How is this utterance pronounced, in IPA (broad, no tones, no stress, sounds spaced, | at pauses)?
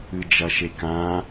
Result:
ɨ d͡ʒ ɐ ʃ e k ã